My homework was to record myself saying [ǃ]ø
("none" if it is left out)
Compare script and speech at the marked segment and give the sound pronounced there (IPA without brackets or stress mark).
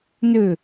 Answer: n